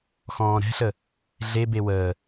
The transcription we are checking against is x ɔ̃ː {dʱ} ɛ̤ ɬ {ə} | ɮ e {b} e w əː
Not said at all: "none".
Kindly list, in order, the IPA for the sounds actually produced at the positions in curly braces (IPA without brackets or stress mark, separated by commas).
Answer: ɾ, ə, b